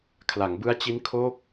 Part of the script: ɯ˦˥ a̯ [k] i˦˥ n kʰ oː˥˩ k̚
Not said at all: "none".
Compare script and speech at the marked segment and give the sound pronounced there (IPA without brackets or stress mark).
t͡ɕ